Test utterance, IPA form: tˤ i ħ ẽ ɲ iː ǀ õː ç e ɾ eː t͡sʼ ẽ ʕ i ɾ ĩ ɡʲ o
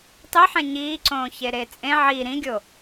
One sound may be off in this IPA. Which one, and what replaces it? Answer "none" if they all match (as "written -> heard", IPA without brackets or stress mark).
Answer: none